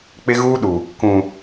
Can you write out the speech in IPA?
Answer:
k͡p ɪ˦ ɣ uː˦ ɗ u˨ | k ũ˨

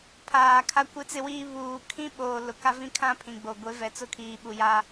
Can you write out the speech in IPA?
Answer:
pʰ aː˨ kʰ a˦ kʷ e˦ t͡s ɪ˦ w iː˦ β uː˨ kʰ ĩ˦ ɓ oː˨ l ʊ˨ k a˦ v ĩ˦ kʰ ã˦ pʰ ĩ˨ ɡ͡b o˨ ɡʷ e˨˦ v ɛ˨ t͡s ʊ˦˨ kʰ iː˨ ɓ u˨ j a˦

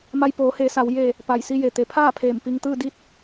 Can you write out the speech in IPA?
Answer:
m a˧ j p oː˩˧ h eː˩˧ s a˩˧ w j e˧˩ | p a˧˩ j s i˧ j e˩ t̪ e˩˧ pʰ aː˥˨ pʰ eː˧˩ m p i˧ ŋ t̪ ɯː˥˨ d i˥˨ t̚

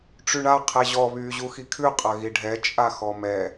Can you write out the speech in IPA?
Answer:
ʈ͡ʂ y ɳ a qʰ ɛ ʑ ɔ β yː ʑ u x i kʰ ʉ qʼ ɐ ɣ i ɖʱ ɛ t͡ʃʼ a x ɔ m ɛ

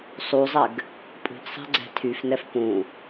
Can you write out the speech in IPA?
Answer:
sˤ u zˤ ɛ ɡ | pʼ ṳ ɡ sˤ ɛ̤ ɡ͡ǀ ɛ̤ tʰ y f n ɛ f p ũ

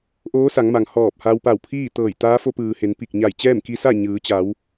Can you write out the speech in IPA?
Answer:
ʔ oː˧˥ s a˩˧ ŋ m a˩ ŋ h ɔː˧˩ p̚ h a˧ w p a˧˩ w pʰ iː˥˨ t̪ ɤː˧˩ j t̪ aː˧˥ f o˧ p ɯː˩ h e˩˧ n p i˧˩ k̚ ɲ a˧˩ j t͡ɕ ɛː˥˨ m k i˧ s a˥˨ ɲ ɯː˩˧ t͡ɕ a˩˧ w

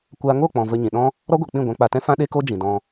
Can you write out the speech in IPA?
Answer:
kʷ a˧ ŋ o˦˨ k͡p ɔ̃˨ v ə˧ ɲ ĩ˨ ɗ ɔ̃˦ | ɾ ɔ˦ ɡʷ e˨ k͡p ĩ˦˨ ɡʷ ã˧ k͡p a˧ t ɛ̃˦ f ã˦ ɗ e˦ k o˦ d͡ʒ ĩ˨ d ɔ̃˧

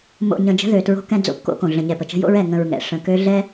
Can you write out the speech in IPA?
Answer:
m o̰˨ ɲ ə̃˨ d͡ʒ ə̤˦ ð ø˨ t ɹ o̤˦ k ɛ̃˦ d͡z o̰˦ p k o̰˦ k õ˨ ɮ ə̃˨ ɲ ɛ˨ p ə˨ t͡ʃ ə̤˦ j o̰˦ ɹ ɛ˨ ŋ ə̃˨ ɹ ŋ ɛ̰˨ ʂ ə̃˨ k ø˦ ɮ ɛ˦

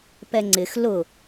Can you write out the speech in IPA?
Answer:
p ɛ ŋ͡ǀ ɪ x l ʊ

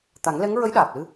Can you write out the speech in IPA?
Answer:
t̪ a˨˩˦ ŋ l ɛ˧˥ ŋ ɹ ə˧˥ j ɗ aː˨˩ p̚ l ɨ˧

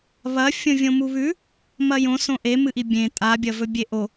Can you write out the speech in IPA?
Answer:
β ɐ fʲ õ vʲ õ m u β ʉ | m ɐ j õ s õ ʔ e m ɨ ʔ i bʲ ẽ tʼ a bʲ ɐ v ɵ bʲ e ʔ o

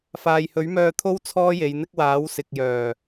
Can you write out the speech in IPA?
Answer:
f aː˨ j h ɵ˨˥ ɥ m œː˧ t̪ʰ o˥ w t͡sʰ ɔː˥ j e˨˧ j n̪ ɪ˥ k̚ w aː˨˥ w s ɪ˨ k̚ j œː˨˩

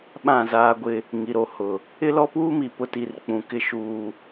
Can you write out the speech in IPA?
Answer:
ɓ ã˦˨ z aː˦ ɡʷ ɪ˦ | ŋ i˨ ɾ o˨ h ʊ˨ | ɪ˦ l ɔ˦ p uː˦ m i˨ p ʊ˦ t i˦˨ r k͡p ũ˨ k ɪ˦˨ ʃ uː˨

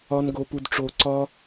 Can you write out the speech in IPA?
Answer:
ɒ˥ n ɡ o˥ p u˥ d ʈ͡ʂ o˥ ǀ ɒ˥

